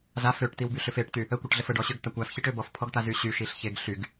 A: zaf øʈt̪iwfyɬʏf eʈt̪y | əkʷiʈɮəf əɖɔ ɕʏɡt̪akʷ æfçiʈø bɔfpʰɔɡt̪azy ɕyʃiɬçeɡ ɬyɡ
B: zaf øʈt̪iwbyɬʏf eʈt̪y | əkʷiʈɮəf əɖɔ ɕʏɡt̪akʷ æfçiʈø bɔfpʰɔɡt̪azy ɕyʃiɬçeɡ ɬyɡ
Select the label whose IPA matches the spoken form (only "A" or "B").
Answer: B